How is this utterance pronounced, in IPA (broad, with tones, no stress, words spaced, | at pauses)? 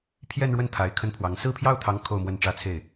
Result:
pʰjɛ˥˧nɻwə˥˩n t̪ʰa˧˥ɪ̯kʰə˥npʰwɑ˧˥ŋ sɹ̩˥˧pʰjɑ˥˩ʊ̯t̪ʰɑ˧˥ŋ kʰo˥˧ʊ̯mwə˥˩nʈ͡ʂä˥t͡sʰe˥˩ɪ̯